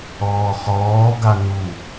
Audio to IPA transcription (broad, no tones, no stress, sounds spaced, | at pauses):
ɔː χ ɔː ɡ a n u